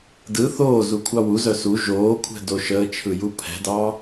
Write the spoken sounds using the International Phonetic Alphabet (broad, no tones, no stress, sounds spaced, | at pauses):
d ɯ θ oː z u kʷʰ ɑ w u z œ s u ʒ oː kʷʰ ɛ̤ d o ʃ əː t͡ʃʰ ɯ j u pʰ ɛ̤ d ɑː